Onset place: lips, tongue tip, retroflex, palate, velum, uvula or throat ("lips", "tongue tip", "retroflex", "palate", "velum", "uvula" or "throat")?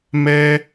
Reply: lips